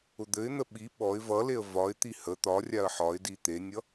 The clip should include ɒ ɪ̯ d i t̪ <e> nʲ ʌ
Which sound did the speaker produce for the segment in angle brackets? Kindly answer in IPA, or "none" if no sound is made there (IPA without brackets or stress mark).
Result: e